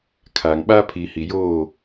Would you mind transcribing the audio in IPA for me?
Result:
kʰ aː˨ ŋ ɓ aː˦ pʰ iː˨ h i˨ j oː˦˨

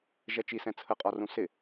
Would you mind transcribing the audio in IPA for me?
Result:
ʒ ɛ t͡ʃ i s ɛ̃ t͡sʰ ə qʼ ɒ r ũ s ɪ

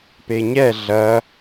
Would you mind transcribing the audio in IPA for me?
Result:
p e ɲ ɛ ɮ ɐ

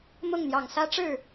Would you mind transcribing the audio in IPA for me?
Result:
m ʊ˥˨ ŋ n̪ j ɑ˨˩ ŋ s ä˦ ʈ͡ʂ ɻ̩˥˨

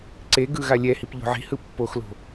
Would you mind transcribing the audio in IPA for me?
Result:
ǀ e ɡ ɯ ɣ a lʲ ɛ h i p ʎ o̤ ʕ i̤ h ɯ pː o x l o̤

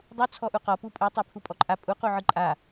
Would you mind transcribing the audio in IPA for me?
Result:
dˤ u t͡sʰ ɔ ʔ u q ɔ p u pʼ ɯ tˤ a pʰ u pʼ ɔ ǃʼ a pʼ u q u ʕ ɯ ǃʼ a

